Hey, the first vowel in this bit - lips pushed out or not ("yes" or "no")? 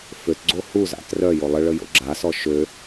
yes